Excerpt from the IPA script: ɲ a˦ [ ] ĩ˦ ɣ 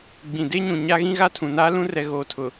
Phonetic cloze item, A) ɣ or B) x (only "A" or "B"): A